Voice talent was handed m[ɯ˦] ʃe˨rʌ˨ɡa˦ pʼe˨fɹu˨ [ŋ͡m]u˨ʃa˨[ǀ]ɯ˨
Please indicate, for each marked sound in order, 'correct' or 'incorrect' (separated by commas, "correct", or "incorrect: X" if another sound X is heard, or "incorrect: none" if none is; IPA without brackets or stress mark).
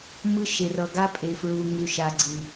correct, incorrect: ŋ, incorrect: ɡ͡ǀ